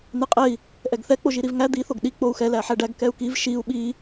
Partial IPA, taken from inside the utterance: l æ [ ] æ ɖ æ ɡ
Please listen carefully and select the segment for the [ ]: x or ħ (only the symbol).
ħ